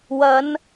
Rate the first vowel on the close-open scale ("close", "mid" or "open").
open